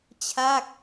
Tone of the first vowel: falling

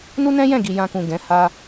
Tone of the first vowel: high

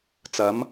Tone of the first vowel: rising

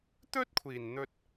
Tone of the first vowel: high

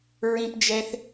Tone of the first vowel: high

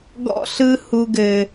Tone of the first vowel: high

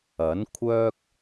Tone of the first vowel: rising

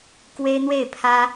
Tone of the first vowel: high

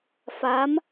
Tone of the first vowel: rising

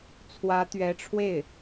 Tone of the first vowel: rising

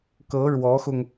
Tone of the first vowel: rising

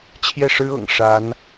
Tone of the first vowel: falling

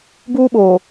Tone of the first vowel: high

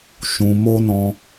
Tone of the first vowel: low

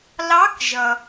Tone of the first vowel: rising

